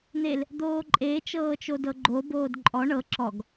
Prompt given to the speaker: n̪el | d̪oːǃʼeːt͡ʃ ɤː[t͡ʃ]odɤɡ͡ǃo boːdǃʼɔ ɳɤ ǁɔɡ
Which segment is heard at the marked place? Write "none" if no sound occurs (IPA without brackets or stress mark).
t͡ʃ